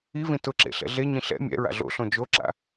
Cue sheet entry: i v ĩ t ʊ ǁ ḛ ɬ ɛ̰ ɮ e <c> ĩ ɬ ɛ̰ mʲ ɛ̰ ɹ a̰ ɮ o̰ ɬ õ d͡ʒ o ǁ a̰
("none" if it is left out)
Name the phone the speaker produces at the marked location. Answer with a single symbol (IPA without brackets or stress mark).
ɲ